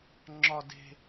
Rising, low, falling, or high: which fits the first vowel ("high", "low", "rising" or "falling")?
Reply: high